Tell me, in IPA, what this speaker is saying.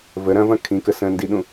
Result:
v ə ɾ ɐ̃ v ɐ̃ kʰ ĩ k ə s ə̃ n d i ɗ ũ

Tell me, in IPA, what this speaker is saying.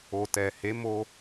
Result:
o˨ t ɛ˨ h e˨˦ m o˧

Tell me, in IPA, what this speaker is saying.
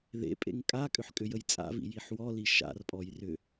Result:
ð ḛ pʼ ḛ ŋ kʼ a kʼ ʏ ħ kʼ ʏ j ə j t͡sʼ a̰ v ḭ j i ħ w ɔ l i ʃ a̰ r pʼ ɔ j r ʏ

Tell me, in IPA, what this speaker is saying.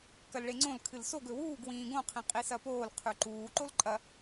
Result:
k ɐ l ɭ e ŋ͡ǀ õ l kʰ ɨ l s o ɡ ɵ w uː ɡ w ĩː ɡ õ qʰ ĩ qʼ i s ɐ p oː l qʰ ʉ ǃ uː ǃ o l ǃʼ ɐ

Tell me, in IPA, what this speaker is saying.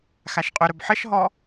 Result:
x a ʃ qʼ ʏ ɾ ɵ b ħ ə ʃ ɦ ɔ

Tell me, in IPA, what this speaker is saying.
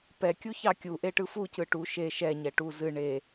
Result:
p ɛ kʲ u ç ɑ kʲ u ʔ e ʈ ɯ f u c ɯ ʈ u ʃ e ʃ ɛ ɲ ɛ ʈ u z ɨ ɳ e

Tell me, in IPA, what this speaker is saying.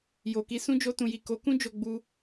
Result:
j o˨ k i˧ s ũ˦ d͡ʒ o˧ t ũ˨ j i˨ k o˨˦ k ũ˦ d͡ʒ o˧ ɡ͡b u˧

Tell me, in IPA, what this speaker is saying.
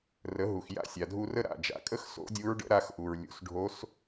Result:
r ə˩˥ ɦ u˩ x j a̰˥ sʲ a˩ dʱ u˧ r ə˥ ɾ a̰˩ d͡ʒ a̰˩˥ kʼ ə˥ x s o̰˧˥ dʲ u˧˥ ɹ ɖ ə̰˧˥ ɾ a˧ x ʔ u˩ ɹ lʲ ṵ˩˥ s ɖʱ o˧˥ s

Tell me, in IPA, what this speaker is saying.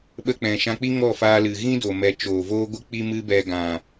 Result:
ɓ ə˧ k͡p ɛ̃˨ ʃ ã˧ k͡p i˦ ŋ ɔ˦˨ f aː˧ l ɨ˨ ɣ ĩ˦ d o˨ m ɛ˧ t͡ʃ oː˨ v oː˦ ɡʷ ɨ˦ k͡p i˦ m ɨ˦ b ɛ˧ ɡ ã˨

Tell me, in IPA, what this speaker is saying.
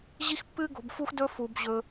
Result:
ʑ i˦ x pː ɨː˦ ɡ o̤˨ b f u˥ x d ɵ˥ f u˩ b ʑ ɵ˩

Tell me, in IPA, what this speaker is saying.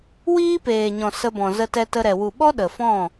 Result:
w iː˦ p eː˨ ɲ ɔ̃˨ s ə˧ b ɔ̃˨ z ə˧ t ɛ˧ t ə˧ ɾ ɛ˨ w u˨ ɓ ɔ˦ ɗ ə˨ f ɔ̃˦˨

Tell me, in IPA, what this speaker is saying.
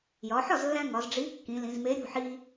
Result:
j ɒ˩˧ ħ ɒ˥˩ z lː æ̃˧ ŋ ɒ˩˧ z ɖ͡ʐ i˨˥ kː ĩ˩˧ l ĩ˩˧ z m e˨˥ ɾʲ ṳ˥˩ ħ i˧

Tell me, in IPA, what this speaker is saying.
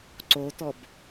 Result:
ǀ o t ɔ b

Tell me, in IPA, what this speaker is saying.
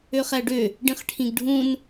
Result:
ø χ æ ɖ ø | ɖ ĩ χ ʈʰ ĩ ɡ ɖʱ ũ n

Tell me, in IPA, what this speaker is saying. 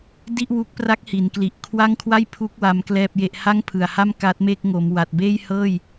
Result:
d i˥˩ ʔ w u˦˥ k̚ p r a˦˥ k̚ h i˩˦ n k l i˨˩ ʔ kʰ w a˥˩ ŋ kʰ w a˥˩ j pʰ u˦˥ k̚ w a˦˥ m k l ɛː˥˩ p̚ j e˥˩ ʔ h a˥˩ ŋ pʰ ɯ˨˩ a̯ h a˥˩ m k a˦˥ t̚ m e˥˩ k̚ ŋ o˩˦ m w a˨˩ t̚ b eː˥˩ j h ɤː˥˩ j

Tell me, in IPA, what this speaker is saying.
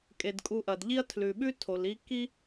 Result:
kʼ e˩ d kʼ u˨ ʔ ɐ˩ d ʎ i˦ ɐ̯ tʰ l ʉ˩ ɓ ʉ˥ tʰ o˩ l i˦ k i˥

